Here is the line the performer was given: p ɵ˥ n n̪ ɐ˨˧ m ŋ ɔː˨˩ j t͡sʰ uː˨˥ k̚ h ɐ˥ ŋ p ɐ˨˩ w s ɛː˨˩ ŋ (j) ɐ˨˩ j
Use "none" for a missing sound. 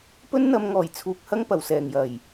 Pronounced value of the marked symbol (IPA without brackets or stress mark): j